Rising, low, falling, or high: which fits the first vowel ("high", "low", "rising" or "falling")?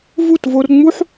falling